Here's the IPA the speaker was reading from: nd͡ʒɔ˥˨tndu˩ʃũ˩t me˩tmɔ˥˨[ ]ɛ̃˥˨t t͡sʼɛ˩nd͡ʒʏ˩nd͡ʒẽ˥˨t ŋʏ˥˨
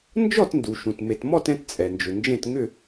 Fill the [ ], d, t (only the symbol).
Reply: t